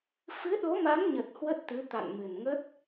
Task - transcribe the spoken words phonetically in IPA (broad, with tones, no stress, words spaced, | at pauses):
fɨ˨˦ ɗo˨˦ma˨˦mɲə˨˩t̚ hwə˦˥t̚t̪ɨ˨˦ t̪a̰˧˨nmɨ˨˩nŋə˦˥t̚